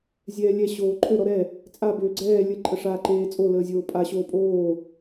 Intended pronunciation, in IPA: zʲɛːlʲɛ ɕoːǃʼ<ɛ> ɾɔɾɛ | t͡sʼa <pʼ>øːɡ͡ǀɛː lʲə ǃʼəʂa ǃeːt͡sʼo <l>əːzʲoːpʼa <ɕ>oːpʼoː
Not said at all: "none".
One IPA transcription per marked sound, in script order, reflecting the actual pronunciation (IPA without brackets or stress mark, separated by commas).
ø, b, l, ɕ